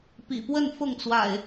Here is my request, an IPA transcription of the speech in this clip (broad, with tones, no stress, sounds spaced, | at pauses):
p ḭ˨˩ p w ə˥˨ n f ʊ˥˨ ŋ t͡s w a̰˨˩ ɪ̯